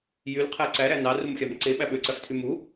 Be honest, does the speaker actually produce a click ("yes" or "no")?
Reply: yes